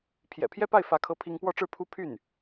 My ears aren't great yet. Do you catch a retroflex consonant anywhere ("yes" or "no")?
yes